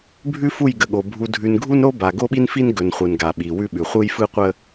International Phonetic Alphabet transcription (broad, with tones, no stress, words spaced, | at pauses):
bʱʉ˦fu˦˨jɡə˨ɠo˨ bʱu˨dʱʉ˨nɡʱu˦nɾo˦ ba˨ ɡo˦ɓi˦nfi˦n ɡɵ˨nχʷɯ˨nɡa˨ ɓi˨wʉ˦ɓʉ˨ χʷɯ˦jfɯ˦qʷə˦